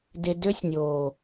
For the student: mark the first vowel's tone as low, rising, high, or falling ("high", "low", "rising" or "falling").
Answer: low